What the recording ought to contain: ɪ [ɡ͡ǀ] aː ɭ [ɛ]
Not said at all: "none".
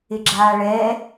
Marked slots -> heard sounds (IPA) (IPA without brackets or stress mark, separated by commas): ɡ͡ǁ, ɛː